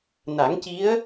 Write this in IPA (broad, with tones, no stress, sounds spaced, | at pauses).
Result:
n a˨˩˦ ŋ c i˧˥ ə̯